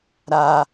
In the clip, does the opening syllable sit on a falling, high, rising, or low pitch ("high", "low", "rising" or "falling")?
high